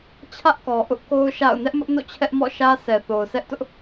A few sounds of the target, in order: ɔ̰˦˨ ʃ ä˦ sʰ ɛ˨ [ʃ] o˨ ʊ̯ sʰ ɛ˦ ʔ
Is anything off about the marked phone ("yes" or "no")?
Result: yes